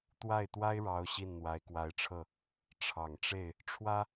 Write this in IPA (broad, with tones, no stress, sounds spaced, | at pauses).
t̪ w a˥˩ ɪ̯ t̪ w a˥ ɪ̯ ɻ ɑ˧˥ ʊ̯ ɕ i˥˩ n n̪ w a˧˥ ɪ̯ k w a˧˥ ɪ̯ ʈ͡ʂʰ ɤ˥˩ | ʈ͡ʂʰ ɑ˨˩ ŋ ʈ͡ʂ e˥˩ ɪ̯ | ʈ͡ʂʰ w ä˥